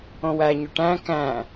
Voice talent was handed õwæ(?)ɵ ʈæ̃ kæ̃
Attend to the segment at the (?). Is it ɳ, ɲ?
ɲ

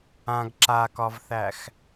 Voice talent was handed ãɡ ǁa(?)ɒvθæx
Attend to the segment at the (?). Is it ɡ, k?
k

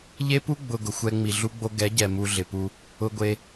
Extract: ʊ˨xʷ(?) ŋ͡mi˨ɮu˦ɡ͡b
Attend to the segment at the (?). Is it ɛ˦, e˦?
ɛ˦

